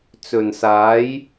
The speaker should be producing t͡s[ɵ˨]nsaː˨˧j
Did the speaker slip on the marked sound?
no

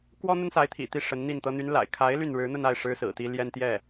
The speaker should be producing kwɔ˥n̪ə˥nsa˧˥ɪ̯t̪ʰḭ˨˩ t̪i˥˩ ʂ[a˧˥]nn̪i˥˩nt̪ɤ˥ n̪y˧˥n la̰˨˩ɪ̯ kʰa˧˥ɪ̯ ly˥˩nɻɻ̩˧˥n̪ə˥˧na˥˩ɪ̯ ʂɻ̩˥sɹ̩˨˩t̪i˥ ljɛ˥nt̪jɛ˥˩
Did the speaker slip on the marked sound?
yes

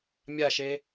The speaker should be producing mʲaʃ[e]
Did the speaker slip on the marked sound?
no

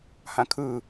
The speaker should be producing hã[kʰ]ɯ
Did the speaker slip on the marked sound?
no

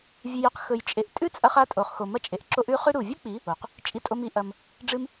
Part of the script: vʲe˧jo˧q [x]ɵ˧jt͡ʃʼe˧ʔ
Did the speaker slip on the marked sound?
no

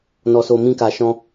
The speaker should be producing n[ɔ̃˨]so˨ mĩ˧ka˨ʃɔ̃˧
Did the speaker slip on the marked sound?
yes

